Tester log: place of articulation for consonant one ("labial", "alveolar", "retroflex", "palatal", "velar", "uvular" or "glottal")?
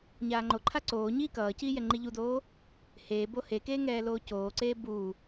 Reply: palatal